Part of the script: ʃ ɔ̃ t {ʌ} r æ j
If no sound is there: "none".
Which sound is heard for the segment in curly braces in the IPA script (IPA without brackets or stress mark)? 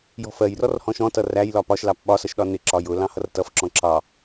ʌ